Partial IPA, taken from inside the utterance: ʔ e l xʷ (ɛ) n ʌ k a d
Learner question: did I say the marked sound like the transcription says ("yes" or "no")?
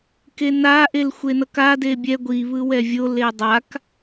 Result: no